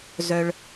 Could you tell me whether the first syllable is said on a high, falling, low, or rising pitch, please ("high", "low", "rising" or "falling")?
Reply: low